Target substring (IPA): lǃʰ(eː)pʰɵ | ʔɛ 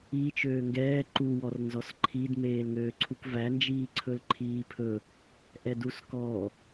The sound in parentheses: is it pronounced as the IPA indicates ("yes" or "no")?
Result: no